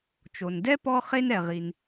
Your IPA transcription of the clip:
t͡ʃo˩ndɛ˥ pɔ˥χe˥n ɛ˩ʁi˩n

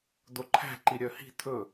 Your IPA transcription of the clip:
d̪oǃʰæ̤ ǃiɾʲœhi̤ t̪ʰɵ

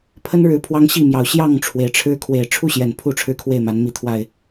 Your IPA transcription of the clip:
pʰə˦nɻɻ̩˨˦ pʰwɑ˦ŋɕi˥˨mjɑ˨˩ʊ̯ ɕjɑ˥˨ŋʈ͡ʂʰwe˩ɪ̯ʈ͡ʂʰɻ̩˦ kʰwe˨˩ɪ̯ʈ͡ʂʰu˥˨ɕjɛ˨˩n pʰu˥˨ʈ͡ʂʰɻ̩˦kʰwe˥˨ɪ̯ma˨˦n mi˨˦t̪ʰwa˨˩ɪ̯

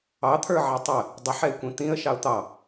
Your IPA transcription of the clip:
ɑt̪ʰə˞ʕɛ tˤə | dˤəħɛɪ̯kʷĩ t̪ĩə̯ʃɑʊ̯ t̪ɑ

